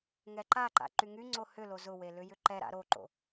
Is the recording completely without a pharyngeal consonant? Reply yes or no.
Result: yes